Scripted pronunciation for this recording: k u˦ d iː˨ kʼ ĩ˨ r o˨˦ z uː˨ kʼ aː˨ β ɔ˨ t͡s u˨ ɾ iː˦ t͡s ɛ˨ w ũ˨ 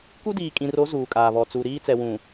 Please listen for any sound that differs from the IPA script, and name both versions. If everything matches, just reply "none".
none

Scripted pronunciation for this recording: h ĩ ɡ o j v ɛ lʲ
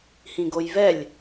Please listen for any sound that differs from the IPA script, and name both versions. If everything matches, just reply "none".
none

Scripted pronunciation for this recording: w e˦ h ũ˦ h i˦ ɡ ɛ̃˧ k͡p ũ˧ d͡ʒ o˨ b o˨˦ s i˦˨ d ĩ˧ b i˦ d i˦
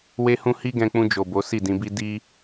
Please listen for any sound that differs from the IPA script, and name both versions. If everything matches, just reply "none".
none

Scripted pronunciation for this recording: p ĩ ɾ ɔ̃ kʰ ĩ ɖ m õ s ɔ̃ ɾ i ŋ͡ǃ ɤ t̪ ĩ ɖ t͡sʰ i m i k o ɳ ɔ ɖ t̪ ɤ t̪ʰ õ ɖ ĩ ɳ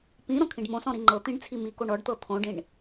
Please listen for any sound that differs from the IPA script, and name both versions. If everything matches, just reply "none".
none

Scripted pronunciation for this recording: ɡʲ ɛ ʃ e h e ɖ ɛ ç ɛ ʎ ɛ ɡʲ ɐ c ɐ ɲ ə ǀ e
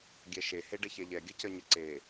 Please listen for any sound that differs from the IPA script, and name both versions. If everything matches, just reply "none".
none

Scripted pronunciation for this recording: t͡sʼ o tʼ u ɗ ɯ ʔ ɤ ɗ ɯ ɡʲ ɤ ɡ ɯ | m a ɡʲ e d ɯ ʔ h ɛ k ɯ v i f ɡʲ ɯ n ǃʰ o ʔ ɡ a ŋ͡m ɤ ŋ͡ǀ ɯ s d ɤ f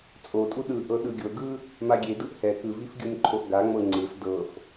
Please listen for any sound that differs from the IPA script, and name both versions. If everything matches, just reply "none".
none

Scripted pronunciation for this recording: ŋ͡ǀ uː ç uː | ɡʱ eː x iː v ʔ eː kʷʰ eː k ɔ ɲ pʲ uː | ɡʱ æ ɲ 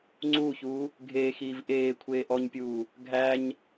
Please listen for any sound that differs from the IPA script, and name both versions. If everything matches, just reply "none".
k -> ʔ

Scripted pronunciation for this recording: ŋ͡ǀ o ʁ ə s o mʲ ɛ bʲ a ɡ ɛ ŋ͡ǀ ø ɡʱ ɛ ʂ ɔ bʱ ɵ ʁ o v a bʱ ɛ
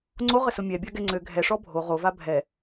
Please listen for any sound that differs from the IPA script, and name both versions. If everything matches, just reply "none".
ɵ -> o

